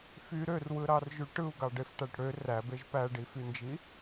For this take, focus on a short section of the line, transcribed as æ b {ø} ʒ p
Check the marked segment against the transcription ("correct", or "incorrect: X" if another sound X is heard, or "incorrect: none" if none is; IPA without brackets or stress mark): incorrect: e